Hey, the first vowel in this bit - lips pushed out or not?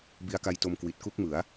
no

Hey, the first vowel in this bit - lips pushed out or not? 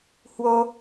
yes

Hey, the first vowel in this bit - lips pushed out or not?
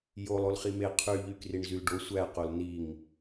yes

